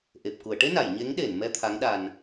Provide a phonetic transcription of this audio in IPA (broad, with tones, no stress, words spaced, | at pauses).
ʔe˨˩p̚ ku˨˩˨ə̯ ʈe˧ na˨˩˨jɲe˧˥ŋɗe˨˩˨nmɛ˧ t̪ʰa˧˥ŋɗa˧n